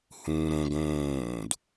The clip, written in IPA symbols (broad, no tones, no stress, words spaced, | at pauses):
hũːɾõɡ õːd